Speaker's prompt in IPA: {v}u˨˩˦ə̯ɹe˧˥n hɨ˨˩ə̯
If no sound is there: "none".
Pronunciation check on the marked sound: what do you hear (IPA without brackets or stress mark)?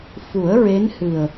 f